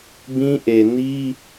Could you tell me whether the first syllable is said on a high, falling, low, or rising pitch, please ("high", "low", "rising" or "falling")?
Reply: high